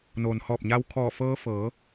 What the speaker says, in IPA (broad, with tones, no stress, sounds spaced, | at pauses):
n oː˩ n h ɔː˧˩ p̚ ɲ a˧ w kʰ ɔː˧˩ f ɤː˧ f ɤː˩˧